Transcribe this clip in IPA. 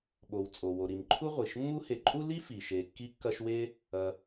ɓo˨w t͡sʼo˩wo˩ɾi˩mǃʰu˦ ʁʷi˩ʃ mːu˦he˨ǃʼu˥li˥ fi˩ʃe˨ kːi˦kːɐ˦ʃwe˥ | ɐ˨

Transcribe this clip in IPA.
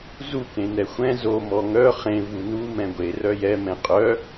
zu kẽnɛxʷɛ̃ zo mɔŋœ χẽ vunu mɛ̃ɡʷe rœjɛ mɛ̃qʼœ

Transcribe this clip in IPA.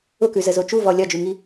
ʊkʉzəzo t͡ʃuvɔ lʲɒd͡ʒʉŋi

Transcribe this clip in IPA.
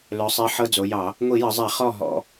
lœ˩˧sˤi˩˧ ħɤ˧d͡zo˩˧jɑ˧˩˧ | ŋʷi˧˩˧jə˩˧zˤɛ˧˩˧ χɔ˥˩ ɦɔ̰˧˩

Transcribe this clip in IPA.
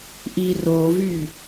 ʔirovy

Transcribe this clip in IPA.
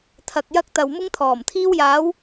t̪ʰɐ˨k̚jɐ˧k̚ t̪ɐ˨w mʊ˧ŋt̪ʰɔː˨˩mt̪ʰiː˧wjaː˨˧w

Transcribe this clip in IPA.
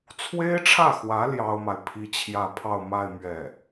t͡sʰwe˥ɪ̯ʈ͡ʂʰä˥˩xwä˧˥ ljɑ˥ʊ̯ma˨ɪ̯pʰi˥t͡ɕʰjä˥˧ pʰɑ˥˧ʊ̯ma˥˧ɪ̯ mɥɛ˥˩

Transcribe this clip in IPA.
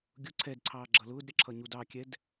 ɡʲʊ ǀʰɛdǀʰɑː ɡ͡ǁʌlʊːdɾʲʌ ǁʰʌɲudɑkʲɛd

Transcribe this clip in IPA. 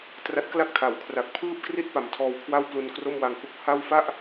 tra˦˥t̚kla˥˩k̚tʰa˩˦wkʰra˨˩k̚ pʰɯː˥˩p̚kri˥˩t̚ pa˨˩mtʰɔː˧wkʰwa˥˩w plu˧nkro˥˩m wa˧ŋhu˥˩k̚ ha˥˩w fa˥˩ʔ

